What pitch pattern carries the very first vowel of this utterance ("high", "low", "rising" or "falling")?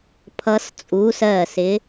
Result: rising